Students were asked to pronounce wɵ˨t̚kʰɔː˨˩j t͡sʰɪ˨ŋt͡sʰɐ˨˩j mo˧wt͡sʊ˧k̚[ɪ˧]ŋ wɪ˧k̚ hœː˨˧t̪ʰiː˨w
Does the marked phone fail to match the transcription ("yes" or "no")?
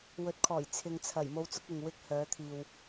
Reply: yes